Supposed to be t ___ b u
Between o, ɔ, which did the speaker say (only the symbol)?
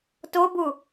o